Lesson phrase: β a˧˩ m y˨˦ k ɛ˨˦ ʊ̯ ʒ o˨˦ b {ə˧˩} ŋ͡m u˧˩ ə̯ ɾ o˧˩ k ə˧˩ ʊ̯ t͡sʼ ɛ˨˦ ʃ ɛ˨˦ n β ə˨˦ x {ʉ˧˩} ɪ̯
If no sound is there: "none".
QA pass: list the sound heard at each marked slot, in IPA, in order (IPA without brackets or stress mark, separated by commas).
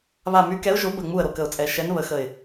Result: ə˧˩, ə˧˩